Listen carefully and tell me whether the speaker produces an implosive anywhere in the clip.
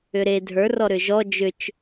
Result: no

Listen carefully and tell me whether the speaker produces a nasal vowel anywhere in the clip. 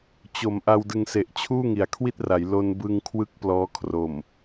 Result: no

